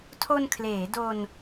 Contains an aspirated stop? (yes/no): yes